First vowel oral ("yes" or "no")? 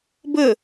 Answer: yes